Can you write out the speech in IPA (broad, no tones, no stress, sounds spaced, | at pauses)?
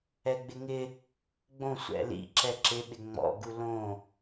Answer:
ɛ ɡ͡b ɪ ŋ ɪ | ɡ͡b õ sʷ ɛ̰ l ḭ ǁ ɛ ǁ ɪ ɓ ɪ ŋ͡m ɔ̰ ɡ u l õ